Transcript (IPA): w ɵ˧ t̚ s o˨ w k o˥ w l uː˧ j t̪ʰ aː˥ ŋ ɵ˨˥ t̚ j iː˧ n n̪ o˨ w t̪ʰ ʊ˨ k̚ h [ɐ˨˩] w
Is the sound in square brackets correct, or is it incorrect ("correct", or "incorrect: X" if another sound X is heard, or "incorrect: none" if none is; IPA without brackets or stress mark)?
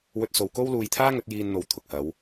incorrect: ɐ˨˧